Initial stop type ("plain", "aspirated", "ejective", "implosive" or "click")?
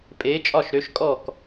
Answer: ejective